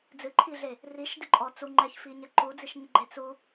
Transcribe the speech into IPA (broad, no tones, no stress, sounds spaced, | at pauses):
d͡z ɨ ǃʰ i ɮ e | r i ʃ d i ǃʼ ɔ t͡s u ŋ͡ǃ ɛ ç f i ɲ ɛ ǃ u d͡z i ʃ ɲ ɨ ɡ͡ǃ e t͡s u